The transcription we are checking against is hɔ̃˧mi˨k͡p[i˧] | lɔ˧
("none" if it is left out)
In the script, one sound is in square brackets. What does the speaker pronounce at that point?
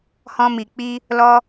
i˧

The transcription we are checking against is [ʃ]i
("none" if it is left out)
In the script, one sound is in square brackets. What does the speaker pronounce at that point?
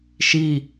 ʃ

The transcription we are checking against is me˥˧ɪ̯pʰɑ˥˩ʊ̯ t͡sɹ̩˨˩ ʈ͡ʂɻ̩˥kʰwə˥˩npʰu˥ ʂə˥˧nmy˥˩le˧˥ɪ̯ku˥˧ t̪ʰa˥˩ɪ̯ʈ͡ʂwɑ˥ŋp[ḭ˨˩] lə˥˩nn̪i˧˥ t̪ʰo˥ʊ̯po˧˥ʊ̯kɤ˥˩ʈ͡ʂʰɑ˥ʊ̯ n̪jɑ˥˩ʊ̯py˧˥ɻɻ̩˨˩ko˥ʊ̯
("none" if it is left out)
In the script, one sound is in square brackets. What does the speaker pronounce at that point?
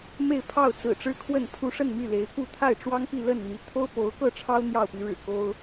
i˥˧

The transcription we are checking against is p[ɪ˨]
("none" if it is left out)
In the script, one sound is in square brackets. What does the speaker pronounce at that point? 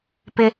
ɪ˦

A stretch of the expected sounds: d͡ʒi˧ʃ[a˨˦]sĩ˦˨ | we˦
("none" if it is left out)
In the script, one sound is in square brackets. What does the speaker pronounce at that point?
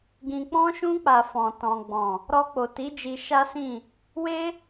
a˦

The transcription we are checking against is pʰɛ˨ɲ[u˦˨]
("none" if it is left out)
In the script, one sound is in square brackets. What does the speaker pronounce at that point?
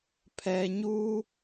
u˦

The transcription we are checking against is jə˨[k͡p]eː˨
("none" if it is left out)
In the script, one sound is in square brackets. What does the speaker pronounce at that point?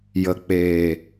k͡p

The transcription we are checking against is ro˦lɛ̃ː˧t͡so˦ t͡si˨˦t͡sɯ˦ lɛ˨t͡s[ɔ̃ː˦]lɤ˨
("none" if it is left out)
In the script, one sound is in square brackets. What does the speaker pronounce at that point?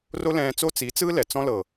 ɔ̃˦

